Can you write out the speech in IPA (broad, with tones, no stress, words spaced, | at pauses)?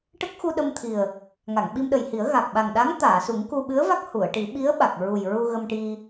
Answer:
ʈə˦˥k̚xu˧ ɗə˧mt̪ʰi˨˩ə̯ | ŋa˨˩˨ŋɓi˧mɗə˨˩jhi˨˩˦ə̯ ɣa˨˩k̚ɓa˨˩ŋ ɗa˧˥ŋ t̪aː˨˩˨su˨˩˦ŋ ku˧ɓɨ˧˥ə̯va˦˥k̚ hu˨˩˨ə̯ ʈi˨˩˦ɓi˧˥ə̯ɓa˨˩k̚ɹu˨˩j ɹu˧ɣə˧mʈi˧